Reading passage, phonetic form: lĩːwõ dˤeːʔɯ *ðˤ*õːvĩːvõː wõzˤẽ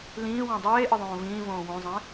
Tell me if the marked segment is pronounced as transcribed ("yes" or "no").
yes